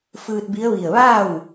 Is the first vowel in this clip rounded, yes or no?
no